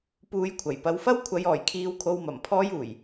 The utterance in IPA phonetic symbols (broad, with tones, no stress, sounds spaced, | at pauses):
p uː˧ j kʷʰ ɐ˨˩ j p ɐ˧ w f ɐ˥ w kʷʰ ɐ˨ j ɔː˨˩ j kʰ iː˨ w kʰ o˨ w m ɐ˨˩ m pʰ ɔː˧ j uː˨˩ j